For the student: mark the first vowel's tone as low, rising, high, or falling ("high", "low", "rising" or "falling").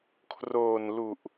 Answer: low